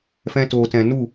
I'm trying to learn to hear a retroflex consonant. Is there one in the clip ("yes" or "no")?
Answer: no